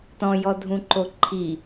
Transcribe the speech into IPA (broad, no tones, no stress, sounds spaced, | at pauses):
t ɔ̃ j ɔ dʱ ũ ǃ o ǃʰ i